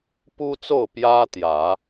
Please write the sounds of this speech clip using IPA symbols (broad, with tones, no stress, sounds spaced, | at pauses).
p u˦ t͡s o˥˨ ʊ̯ p j ä˦ t̪ j ä˨˦